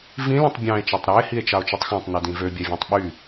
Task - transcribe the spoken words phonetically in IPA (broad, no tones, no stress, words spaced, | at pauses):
vĩ lĩtˤbʲɑ̃e̯ t͡ʃɑtˤɾæe̯ hie̯t͡ʃɑo̯t͡ʃutˤxɑ̃tˤ nødĩvø bʲævʲæ̃tˤɓy